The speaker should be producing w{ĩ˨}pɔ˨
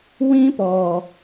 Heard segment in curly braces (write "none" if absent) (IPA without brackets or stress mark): ĩ˦